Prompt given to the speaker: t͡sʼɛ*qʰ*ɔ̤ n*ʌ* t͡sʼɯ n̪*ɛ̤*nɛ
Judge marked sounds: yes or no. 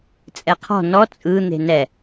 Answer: yes, no, no

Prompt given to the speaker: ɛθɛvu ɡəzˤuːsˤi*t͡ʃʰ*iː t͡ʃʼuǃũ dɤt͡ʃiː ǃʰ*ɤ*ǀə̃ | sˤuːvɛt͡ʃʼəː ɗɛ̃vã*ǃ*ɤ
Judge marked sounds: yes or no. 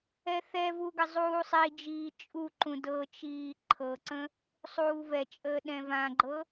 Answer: no, yes, no

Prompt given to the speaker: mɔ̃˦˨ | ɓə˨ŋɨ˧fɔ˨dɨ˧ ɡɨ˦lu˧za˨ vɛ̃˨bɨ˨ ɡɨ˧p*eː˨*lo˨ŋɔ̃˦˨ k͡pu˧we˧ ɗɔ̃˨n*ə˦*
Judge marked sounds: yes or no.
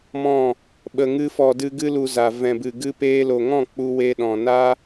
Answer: no, no

